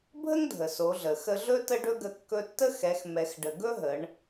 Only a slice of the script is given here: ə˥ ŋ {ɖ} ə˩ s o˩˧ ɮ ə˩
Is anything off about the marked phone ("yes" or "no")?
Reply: yes